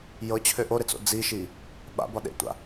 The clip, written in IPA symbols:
j ɤ t͡ɕʰ ø ʔ o ɾ e t͡s o̰ d͡z i ʃ i | ɓ a̰ b ɒ ɗ ḛ tʷ a̰

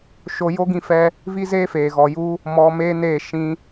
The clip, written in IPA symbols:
ʃ o˧ j o˦ ɡ ĩ˧ f ɛ˧ | v i˦ z eː˦ f eː˨ ɣ ɔ˨ j u˧ | m ɔ˧ m eː˦ n eː˦˨ ʃ ĩ˧

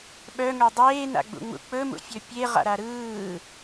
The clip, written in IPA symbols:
ɓ œ ŋ œ dˤ eː n a̰ ɡ͡b ṵ ŋ͡m ṵ k͡p ɵ m ṵ fʲ ɵ pʲ e ʁ a̰ ɾ a ɾ ɯː

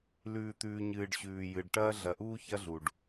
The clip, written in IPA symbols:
l ʉː˨ t̪ ʉː˨ ɲ ɨː˨ ɖ ɕ ʉː˨ j ɨ˨ ɖ ʈ ɐː˦ ɮ ɐ˨ ʔ uː˦ ç ɐ˦ ɮ u˨ ɖ

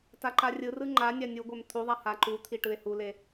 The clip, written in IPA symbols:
t a ǃ a rʲ ɯ r ɯ ŋ͡ǃ a nʲ a nʲ u ɡʷ ɛ m t̪ʰ u ðˤ a h a ǃ u t̪ʰ i ʈ ɯ e̯ h u l e

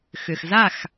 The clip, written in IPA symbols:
x ʏ˩ x z a˥˩ x

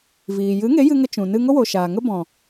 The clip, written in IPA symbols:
v iː˨ j ɨ˨˦ ŋ e˨˦ j ɨ˧ ŋ ə˧ t͡ʃ ũ˨ n ɨ˧ ŋ o˦ w o˨ ʃ aː˨ ŋ ə˦ b ɔ̃˨

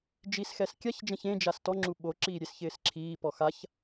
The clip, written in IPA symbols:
d͡ʒ i s x ɛ s kʲ a ç d͡ʒ ɛ̃ ç ẽ d͡ʒ a s t ɔ ŋ͡ǁ u ɓ o ǁ iː ɾʲ e s ç ɪː s ǁʰ iː p ɔ x a ç

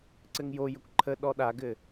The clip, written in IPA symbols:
ǀ ɘ ŋ j o j ə kʷ ǃʰ ə ɗ ɔ ɗ a ɡ ɘ

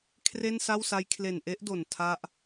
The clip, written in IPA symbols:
kʰ r e˥˩ n s a˥˩ w s a˦˥ j kʰ l e˨˩ n ʔ e˦˥ ʔ d o˨˩ n tʰ a˦˥ ʔ

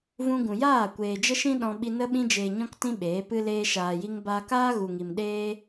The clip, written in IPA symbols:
v ũ˧ ɡ ũ˨ j aː˦˨ kʷ eː˨ d͡ʒ ə˦ ʃ ĩ˦ ɗ ɔ̃˧ ɓ i˧ n ə˦ ɓ ĩ˧ d͡ʒ eː˨ ɲ ɔ̃˧ k t ĩ˧ ɓ eː˨˦ p ɨ˦ l eː˧ ʃ aː˨ j i˧ ŋ b aː˧ k aː˦ ɣ u˨ ŋ i˨ m ɗ eː˦

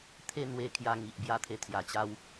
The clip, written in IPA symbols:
t̪ʰ e˥˧ n̪ w e˧ kʰ j a˧ ŋ i˨ ʔ b j a˧ t̪ʰ e˧ t̪ʰ j a˨˩ t͡ɕ a˧ w

